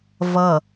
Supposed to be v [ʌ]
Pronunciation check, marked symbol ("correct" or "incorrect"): correct